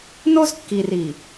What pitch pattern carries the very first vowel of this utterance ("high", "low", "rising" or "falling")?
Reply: high